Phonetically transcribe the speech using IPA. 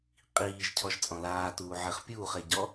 qʼ iː ʒ cʰ ɔ ʒ t͡sʼ ɔ̃ l aː t uː ʕ e χ pʲ uː χ e ɟ ɔ

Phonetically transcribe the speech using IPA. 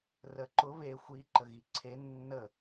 r ə ǃ ʊ β e xʷ i ǃ ə ɣ i ǀʰ e nː ə

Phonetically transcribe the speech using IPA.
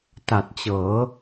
t a˨˩ t̚ t͡ɕ ɤː˩˦

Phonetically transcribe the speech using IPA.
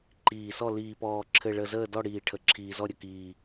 ǃ iː˨˩ s ɔ˥˨ l iː˨˩ p ɔː˨˩ ǁʰ ɘ˨˩ ɭ ə˨˩ z əː˥˨ d ɔ˥˨ ɽ iː˨˩ ʈʰ ə˨˩ ǁʰ iː˨˩ z ɔ˥˨ ɾʲ ə˨˩ k iː˨˩

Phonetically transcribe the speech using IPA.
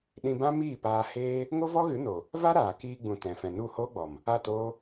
ɗ ĩ˧ b ã˦ m iː˦˨ p aː˧ h eː˦ | ŋ o˦ v ɔ˦ ɣ ɨ˨˦ n o˨ | v a˦ ɾ aː˨ k iː˧ ɡ͡b ũ˨ t ɛ̃˨ f ɛ̃˨ n u˦˨ h oː˦ ɡ͡b ɔ˨ m | a˦˨ t oː˦

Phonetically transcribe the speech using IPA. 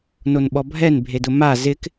n o n ɓ ɔ bʱ ɛ n bʱ e d ʊ m a z ɪ k

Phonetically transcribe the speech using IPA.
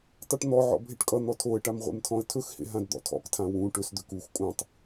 tˤ o ʈ n̪ ɔ ʕ ɔ̰ bʱ e ʈ kʼ ʌ n̪ ɔ tʰ o ə̯ ʈ a m ʁʷ ḛ m tʰ ɔ̃ ə̯ tʰ ɵ x h ḛ ɦ ã d d̪ ɔ̰ tʰ ɔ̰ k tʰ ã w ũ ʈ ɵ s d̪ ø k u x kʼ ũ tˤ

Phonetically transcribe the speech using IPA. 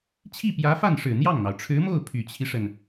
t͡ɕʰ i˥˩ p j ä˧˥ f a˥˩ n ʂ ɻ̩˨˩ n̪ j ɑ˥˩ ŋ n̪ ɑ˩ ʊ̯ ʈ͡ʂʰ ɻ̩˧˥ m o˥˩ ʊ̯ pʰ y˨˩ t͡ɕʰ i˦ ʂ ə˩ n

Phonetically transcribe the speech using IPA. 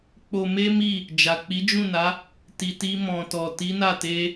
k͡p o˧ m e˦ m i˦˨ | d͡ʒ a˨ k͡p i˨˦ d͡ʒ ũ˦˨ n a˨˦ | t i˨ t i˧ m ɔ̃˨ t ɔ˨ t i˨˦ n a˦˨ t e˧

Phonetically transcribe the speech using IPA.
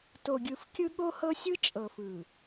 t o˨ ɡʲ ɯ˨ f kʲ ɯ˦ ɠ o˦ h ɤ˦ sʲ ɯ˦ t͡ʃʼ ɤ˨ f ɯ˨

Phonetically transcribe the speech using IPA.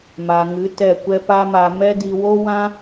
m a˨ ŋ ɨ˨˦ t ɛ˦˨ kʷ ɛ˦ p a˦ m a˧ m ɛ˦ d i˧ w o˦ w ã˦

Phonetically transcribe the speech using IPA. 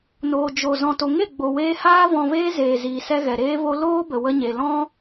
n oː˨ d͡ʒ o˨ z ɔ̃˨ t o˨ ŋ e˦˨ ɡ͡b o˨ w eː˧ h aː˦ v ɔ̃˧ v eː˦ z eː˨ z iː˨ s ɛ˧ ɣ ɛ˨ ɾ eː˧ v o˧ l oː˦ b ə˨ w ə˧ ɲ e˨ l ɔ̃˦

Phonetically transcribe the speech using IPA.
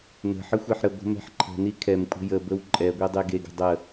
n ə̤ ħ ə xʷ ɛ ħ ɾ ə ɡʷ ə̤ m ɛ̤ ħ ǃʰ ə̤ n i kʰ ɛ m kʷʼ ə̤ j ə b ə w ǃʼ ɛ ɡʷ e dˤ e ɡ e ɡ ə̤ dˤ ə

